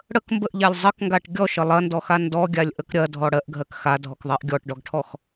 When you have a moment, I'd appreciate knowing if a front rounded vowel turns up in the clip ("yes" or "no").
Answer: no